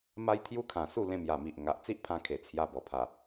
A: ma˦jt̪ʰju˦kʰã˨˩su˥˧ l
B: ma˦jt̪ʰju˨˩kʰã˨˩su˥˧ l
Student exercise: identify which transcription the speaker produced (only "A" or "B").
A